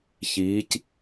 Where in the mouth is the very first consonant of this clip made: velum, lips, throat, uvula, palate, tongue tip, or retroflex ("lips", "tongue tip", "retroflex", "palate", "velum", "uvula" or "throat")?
palate